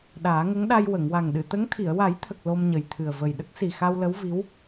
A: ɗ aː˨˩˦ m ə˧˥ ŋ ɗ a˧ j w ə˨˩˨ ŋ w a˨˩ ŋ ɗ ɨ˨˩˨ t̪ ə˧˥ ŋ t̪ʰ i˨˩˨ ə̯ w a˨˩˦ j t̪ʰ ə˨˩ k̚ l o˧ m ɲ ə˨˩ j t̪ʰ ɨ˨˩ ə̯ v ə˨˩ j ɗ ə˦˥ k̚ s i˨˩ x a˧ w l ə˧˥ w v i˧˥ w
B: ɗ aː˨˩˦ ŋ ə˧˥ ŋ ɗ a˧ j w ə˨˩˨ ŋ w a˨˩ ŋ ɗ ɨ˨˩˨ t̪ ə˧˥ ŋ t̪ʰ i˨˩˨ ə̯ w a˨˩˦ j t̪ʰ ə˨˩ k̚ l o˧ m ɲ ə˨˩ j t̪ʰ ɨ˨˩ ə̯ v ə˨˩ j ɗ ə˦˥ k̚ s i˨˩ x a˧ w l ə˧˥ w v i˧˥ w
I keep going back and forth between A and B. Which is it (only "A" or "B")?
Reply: B